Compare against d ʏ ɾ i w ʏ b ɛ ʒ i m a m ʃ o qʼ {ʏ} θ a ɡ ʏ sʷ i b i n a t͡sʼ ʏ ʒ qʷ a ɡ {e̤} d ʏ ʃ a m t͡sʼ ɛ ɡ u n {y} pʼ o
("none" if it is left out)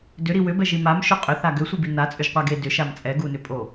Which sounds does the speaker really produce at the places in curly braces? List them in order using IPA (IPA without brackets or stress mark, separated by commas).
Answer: ʏ, e, ʏ